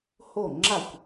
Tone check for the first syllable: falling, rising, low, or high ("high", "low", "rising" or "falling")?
falling